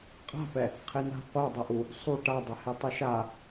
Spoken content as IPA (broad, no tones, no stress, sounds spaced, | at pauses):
qʼ a̤ p ɛ | qʰ e n a̤ qʷ a dˤ ɐ ʔ u | sˤ u ʈ a dˤ ɐ h e tˤ ʊ ʃ a